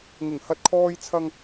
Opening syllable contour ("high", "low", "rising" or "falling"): low